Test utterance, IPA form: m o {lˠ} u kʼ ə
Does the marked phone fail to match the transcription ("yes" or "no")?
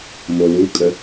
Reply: yes